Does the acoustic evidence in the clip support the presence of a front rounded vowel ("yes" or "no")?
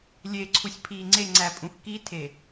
no